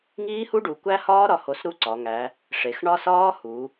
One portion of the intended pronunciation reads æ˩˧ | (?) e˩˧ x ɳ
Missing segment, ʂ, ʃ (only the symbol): ʂ